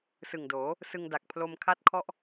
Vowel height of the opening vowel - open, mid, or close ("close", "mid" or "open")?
close